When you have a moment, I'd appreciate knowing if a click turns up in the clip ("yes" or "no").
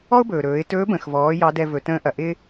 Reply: no